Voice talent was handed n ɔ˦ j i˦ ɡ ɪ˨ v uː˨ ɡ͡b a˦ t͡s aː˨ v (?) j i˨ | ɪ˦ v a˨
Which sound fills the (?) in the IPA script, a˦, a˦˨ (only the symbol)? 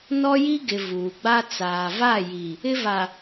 a˦˨